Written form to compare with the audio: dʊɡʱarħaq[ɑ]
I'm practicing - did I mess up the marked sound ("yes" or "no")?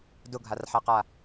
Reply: yes